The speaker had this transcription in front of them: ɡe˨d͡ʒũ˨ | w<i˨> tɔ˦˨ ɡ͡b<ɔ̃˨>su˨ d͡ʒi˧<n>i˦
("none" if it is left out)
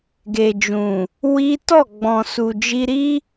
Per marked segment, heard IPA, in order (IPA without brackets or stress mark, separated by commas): i˦, ɔ̃˨, ɾ